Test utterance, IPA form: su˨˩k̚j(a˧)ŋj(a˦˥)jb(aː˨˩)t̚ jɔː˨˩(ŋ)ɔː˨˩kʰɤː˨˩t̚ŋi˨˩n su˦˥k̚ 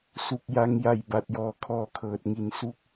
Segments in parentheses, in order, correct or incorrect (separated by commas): correct, incorrect, incorrect, incorrect